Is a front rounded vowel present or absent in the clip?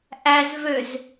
present